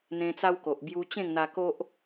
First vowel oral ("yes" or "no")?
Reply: no